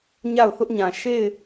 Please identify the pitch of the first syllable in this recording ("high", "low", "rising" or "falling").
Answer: falling